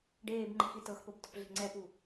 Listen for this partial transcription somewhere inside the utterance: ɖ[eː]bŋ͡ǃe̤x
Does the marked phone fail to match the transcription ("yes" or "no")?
no